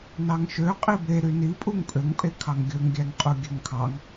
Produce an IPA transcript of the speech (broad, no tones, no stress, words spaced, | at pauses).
nɑŋʃø qʼibe ɾynipʼuŋ pʼøŋpʼekʰɑŋ ɡʲɵŋɡʲæŋqʼu ɡʲøŋkʰɑŋ